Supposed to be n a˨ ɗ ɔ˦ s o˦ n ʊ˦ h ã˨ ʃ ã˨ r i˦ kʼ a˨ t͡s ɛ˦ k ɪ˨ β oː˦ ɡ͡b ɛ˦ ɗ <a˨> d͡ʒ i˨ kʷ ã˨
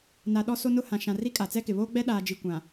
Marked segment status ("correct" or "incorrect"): incorrect